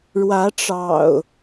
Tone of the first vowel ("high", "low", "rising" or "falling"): rising